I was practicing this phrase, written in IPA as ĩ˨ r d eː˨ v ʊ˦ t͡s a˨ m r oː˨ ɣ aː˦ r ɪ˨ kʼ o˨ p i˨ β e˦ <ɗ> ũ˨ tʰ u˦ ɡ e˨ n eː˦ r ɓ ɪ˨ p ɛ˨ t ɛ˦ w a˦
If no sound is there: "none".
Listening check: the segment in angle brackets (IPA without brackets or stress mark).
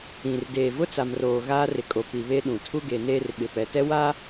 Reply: ɗ